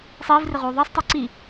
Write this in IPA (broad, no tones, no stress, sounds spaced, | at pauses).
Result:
sˤ iː v r ɪ ʁ uː ðˤ əː sˤ tˤ əː ǀ i